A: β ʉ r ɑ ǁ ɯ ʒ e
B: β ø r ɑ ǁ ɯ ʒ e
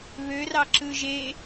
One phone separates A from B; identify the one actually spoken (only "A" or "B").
B